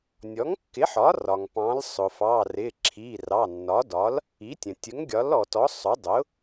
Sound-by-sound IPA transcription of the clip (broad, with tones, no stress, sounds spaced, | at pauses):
nʲ ɔ˩˥ ŋ kː ɪ˩˥ ħ ɒ˩˥ r ɒ˩ ŋ p ɑ̃˩˥ l sˤ ʊ˩ f ɑ˩˧˩ r ɪ˩˧˩ ǁʰ i˩˧˩ r ɑ˩˧˩ nː ɒ˩˥ d ɒ˩˥ l | i˩˥ tʲ ə̃˩ tʲ ə˩˥ ŋ ɡʲ ɒ˩˥ l ɔ˩ t ɔ˩˥ sˤ ʊ˩˥ dˤ ʊ˩˥